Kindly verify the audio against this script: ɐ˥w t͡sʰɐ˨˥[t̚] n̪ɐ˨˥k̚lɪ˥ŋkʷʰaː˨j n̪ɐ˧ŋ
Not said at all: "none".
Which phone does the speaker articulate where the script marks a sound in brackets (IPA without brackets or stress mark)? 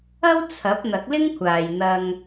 p̚